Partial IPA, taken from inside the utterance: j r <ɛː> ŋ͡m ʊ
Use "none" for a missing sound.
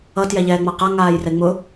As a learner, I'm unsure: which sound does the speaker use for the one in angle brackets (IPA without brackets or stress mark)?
ɛ